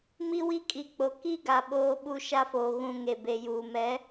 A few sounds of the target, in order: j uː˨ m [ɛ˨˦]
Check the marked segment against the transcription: correct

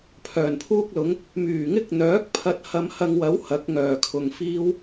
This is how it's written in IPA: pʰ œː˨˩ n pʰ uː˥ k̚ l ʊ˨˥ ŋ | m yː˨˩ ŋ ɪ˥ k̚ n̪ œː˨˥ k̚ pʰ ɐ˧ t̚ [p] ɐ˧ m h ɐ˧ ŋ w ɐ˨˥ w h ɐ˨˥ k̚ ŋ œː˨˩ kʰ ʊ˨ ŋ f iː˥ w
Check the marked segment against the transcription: incorrect: h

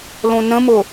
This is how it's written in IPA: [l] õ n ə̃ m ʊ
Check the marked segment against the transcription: correct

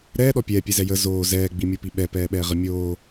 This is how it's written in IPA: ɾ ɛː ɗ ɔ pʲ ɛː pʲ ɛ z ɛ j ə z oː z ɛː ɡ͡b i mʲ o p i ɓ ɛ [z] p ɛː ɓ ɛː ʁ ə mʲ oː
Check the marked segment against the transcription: incorrect: none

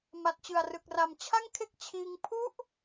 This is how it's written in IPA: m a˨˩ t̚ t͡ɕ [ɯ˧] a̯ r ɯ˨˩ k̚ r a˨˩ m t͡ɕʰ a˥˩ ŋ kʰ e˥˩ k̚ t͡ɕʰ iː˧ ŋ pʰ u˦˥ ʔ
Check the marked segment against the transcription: incorrect: ɯ˨˩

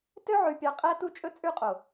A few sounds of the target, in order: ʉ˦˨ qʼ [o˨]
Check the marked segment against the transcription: correct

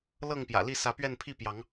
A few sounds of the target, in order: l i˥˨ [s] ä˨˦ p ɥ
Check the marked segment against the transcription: correct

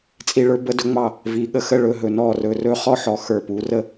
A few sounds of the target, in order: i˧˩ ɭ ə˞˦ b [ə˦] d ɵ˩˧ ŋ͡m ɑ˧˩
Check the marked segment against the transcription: incorrect: ə˩˧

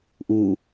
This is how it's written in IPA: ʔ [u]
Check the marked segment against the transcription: correct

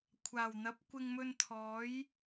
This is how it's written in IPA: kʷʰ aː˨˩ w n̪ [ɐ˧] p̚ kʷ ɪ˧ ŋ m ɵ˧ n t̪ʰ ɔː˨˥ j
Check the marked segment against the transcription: incorrect: ɐ˨˥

